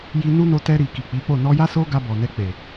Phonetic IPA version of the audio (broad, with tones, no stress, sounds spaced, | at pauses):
j i˧ n u˦ n o˧ t ɛ˧ ɾ i˨ k i˨ k͡p i˨˦ k͡p o˦˨ n ɔ˧ j a˦ s o˦ ɡ a˧ b ɔ˨ n ɛ˧ k͡p e˨